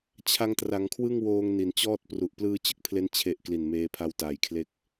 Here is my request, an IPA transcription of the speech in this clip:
t͡ɕʰ a˧ ŋ t r a˩˦ ŋ kʰ w ɯ˥˩ ŋ w oː˧ ŋ n i˩˦ n t͡ɕ ɔː˥˩ t̚ p r u˨˩ ʔ p l ɯː˧ t͡ɕ ɯ˥˩ k̚ pʰ l e˦˥ n t͡ɕʰ e˨˩ ʔ k l i˨˩ n m eː˧ pʰ a˧ w t aː˩˦ j kʰ l e˦˥ k̚

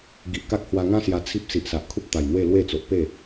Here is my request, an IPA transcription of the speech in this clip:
ɡ i˨ ʔ k a˦ k̚ h w a˧ ŋ ã˦ s j a˧ t͡sʰ i˦ p̚ s i˨ ʔ s a˨ ʔ kʰ u˦ p̚ t̪ a˨˩ j n̪ w e˥˧ l w e˥˧ t͡s o˨ ʔ p e˥˧

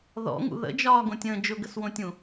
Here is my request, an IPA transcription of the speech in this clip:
ð ɔ̰ ŋ ṵ ð ə̰ d͡ʒ ɒː ɡ õ tʲ ə̃ː d͡ʒ ʊ ɡ ə s w õ tʲ ũ

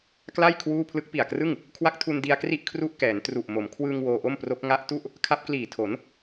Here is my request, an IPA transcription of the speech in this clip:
k l a˥˩ j kʰ w uː˥˩ pʰ l ɯ˦˥ k̚ p i˨˩ a̯ k r ɯ˥˩ ŋ | kʰ w a˦˥ k̚ tʰ u˧ n d i˧ a̯ k r i˥˩ ʔ kʰ r u˥˩ ʔ k ɛː˩˦ n t r u˨˩ ʔ m o˩˦ m kʰ w ɯː˧ ŋ w oː˧ ʔ o˥˩ m p r o˦˥ k̚ ŋ a˦˥ ʔ t u˥˩ ʔ | kʰ a˦˥ p̚ k l iː˨˩ tʰ o˩˦ n

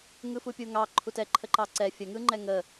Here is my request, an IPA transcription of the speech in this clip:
ŋ ɯ f u pʲ u ŋ ɑ ǃʰ u t ɛ ǃʰ ə ǃ ɑ ǀ ɛ fʲ ə ŋ ɯ ŋ͡ǃ ɛ ŋ ə

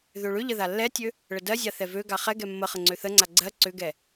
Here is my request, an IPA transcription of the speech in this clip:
ð ø ɭ ʏ ʎ ə ð a lː ɛ tʲ ø | ɭ ə d ɜ zʲ a θ ɛ v ø ɡ a χ ɛ ɡ ɛ mː ə χ ə ŋ͡ǀ ø θ ə ŋ͡ǀ a ɡ͡ǀ ɜ ǀ ʏ ɡ ɛ

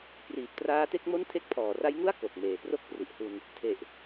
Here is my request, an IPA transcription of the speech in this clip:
k r iː˨˩ p̚ t r aː˦˥ t e˥˩ k̚ m o˥˩ n tʰ e˦˥ k̚ pʰ ɔː˨˩ r a˦˥ j ŋ u˥˩ a̯ k o˨˩ k̚ m eː˩˦ p r o˥˩ k̚ p r i˨˩ ʔ h u˧ n | tʰ e˨˩ ʔ

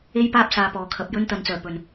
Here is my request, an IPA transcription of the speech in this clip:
e˥ j p aː˥ p̚ s aː˨ p ɔː˨˩ kʰ ɐ˨ p̚ j ɵ˥ n t̪ ɐ˨˧ n t͡s œː˨˩ p ɵ˨˩ n

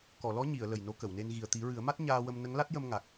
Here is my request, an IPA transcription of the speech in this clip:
k ɔ˨˩˨ l ɔ˧˥ ɲ i˨˩˨ ə̯ l ə˨˩ j n o˧˥ k ə˨˩˨ w n e˧ n ɣ i˨˩ ə̯ t̪ i˨˩˦ ɹ ɨ˨˩˦ ə̯ m a˦˥ t̚ ɲ aː˧ w ə˧ m n ə˧˥ ŋ l a˦˥ t̚ j ə˧ m ŋ a˨˩ k̚

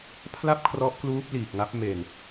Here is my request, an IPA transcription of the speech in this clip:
pʰ l a˥˩ p̚ kʰ r ɔ˦˥ ʔ k l uː˦˥ p̚ l iː˨˩ k̚ ŋ a˦˥ p̚ m e˨˩ n

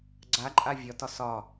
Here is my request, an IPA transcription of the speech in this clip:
ɡ͡ǀ a ǃʼ a vʲ ɒ t ɒ s ɒ

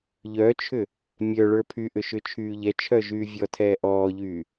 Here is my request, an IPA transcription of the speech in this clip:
ʎ œ t͡ʃʰ ʏ | mʲ œ ɭ ə˞ pʰ y ʔ ʏ ʃ ʏ t͡ʃʰ yː ʎ ɛ t͡ʃʰ œ ʒ yː vʲ ɔ tʰ ɛː ʔ ɔː ʎ yː

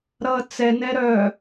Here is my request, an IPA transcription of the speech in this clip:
ɾ ʌ t͡s ɛ n ɛ ɾ œ

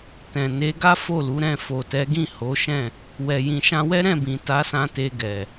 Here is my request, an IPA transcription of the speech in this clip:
t ɛ̃˨ n e˨˦ ɡ a˦ f o˦˨ l u˨˦ ɾ ɛ̃˦˨ f o˨ t ɛ˨˦ ɡ ĩ˦˨ h o˨˦ ʃ ɛ̃˦˨ | w ɛ˨ j ĩ˨ ʃ ã˧ w ɛ˦ ɾ ɛ̃˦˨ b ĩ˨ t a˨˦ s ã˧ t e˧ ɡ ɛ˨

